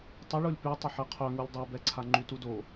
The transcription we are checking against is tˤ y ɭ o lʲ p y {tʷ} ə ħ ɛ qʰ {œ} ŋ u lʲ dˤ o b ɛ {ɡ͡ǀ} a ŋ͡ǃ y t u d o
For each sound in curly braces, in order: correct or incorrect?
incorrect, correct, incorrect

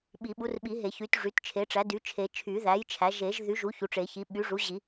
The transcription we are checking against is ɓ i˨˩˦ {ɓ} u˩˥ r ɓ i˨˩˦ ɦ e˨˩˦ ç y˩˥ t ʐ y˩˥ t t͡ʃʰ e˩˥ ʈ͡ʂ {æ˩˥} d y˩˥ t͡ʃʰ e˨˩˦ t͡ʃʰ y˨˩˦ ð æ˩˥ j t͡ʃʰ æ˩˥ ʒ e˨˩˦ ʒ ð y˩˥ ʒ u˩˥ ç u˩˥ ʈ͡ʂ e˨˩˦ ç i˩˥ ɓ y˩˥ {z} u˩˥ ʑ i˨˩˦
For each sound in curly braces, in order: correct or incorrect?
correct, correct, incorrect

